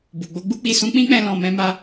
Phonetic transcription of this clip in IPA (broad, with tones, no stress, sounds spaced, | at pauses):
b u˨ ɡ͡b o˧ ɡ͡b u˦ k͡p i˧ s ũ˧ k͡p ĩ˦ k͡p ɛ̃˧ l ɔ̃˧ m ɛ̃˦ m a˦